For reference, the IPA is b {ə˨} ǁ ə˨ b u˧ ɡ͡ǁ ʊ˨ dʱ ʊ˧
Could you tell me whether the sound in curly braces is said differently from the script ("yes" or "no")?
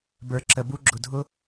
yes